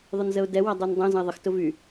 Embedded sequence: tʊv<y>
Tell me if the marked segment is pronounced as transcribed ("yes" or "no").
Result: yes